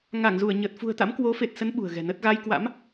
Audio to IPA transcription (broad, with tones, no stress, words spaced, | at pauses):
ŋa˧˩ŋzu˧˩ə̯ɲə˨˩t̚fṳ˨˩ə̯ t̪a̰˧˥mkwo˨˦fe˨˩t̚sə˨˦n ɓṳ˨˩ə̯ɣɛ̤˨˩nə˦˥t̚ ɣa˧j kwa̰˧˥m